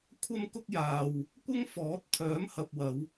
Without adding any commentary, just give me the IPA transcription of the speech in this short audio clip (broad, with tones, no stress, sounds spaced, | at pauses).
kʷʰ ɐ˥ m k ʊ˥ k̚ j aː˨ w | kʷ ɐ˥ ŋ f ɔː˨˥ t̚ t̪ʰ œː˨˥ m h ɐ˨ p̚ w ɐ˨˧ w